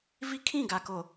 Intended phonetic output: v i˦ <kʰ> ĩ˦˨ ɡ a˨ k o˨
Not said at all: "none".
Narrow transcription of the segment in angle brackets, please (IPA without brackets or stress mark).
kʰ